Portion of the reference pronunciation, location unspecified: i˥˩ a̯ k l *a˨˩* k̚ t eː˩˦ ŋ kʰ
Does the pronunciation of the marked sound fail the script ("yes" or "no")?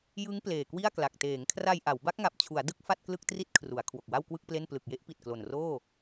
no